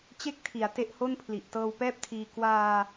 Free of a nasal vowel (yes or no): yes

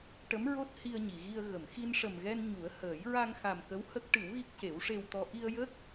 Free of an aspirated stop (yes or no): yes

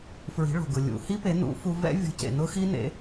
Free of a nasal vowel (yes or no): yes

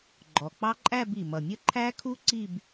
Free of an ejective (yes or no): no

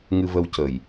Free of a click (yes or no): yes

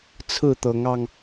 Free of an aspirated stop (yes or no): no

